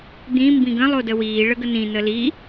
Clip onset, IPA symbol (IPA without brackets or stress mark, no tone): d̪